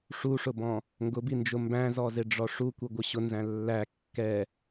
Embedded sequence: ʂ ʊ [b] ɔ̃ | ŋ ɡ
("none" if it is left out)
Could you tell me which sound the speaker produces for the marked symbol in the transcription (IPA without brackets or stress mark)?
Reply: b